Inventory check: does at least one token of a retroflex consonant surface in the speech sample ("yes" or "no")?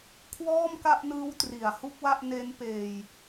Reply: no